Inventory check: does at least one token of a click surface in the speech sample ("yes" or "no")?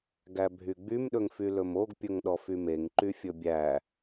yes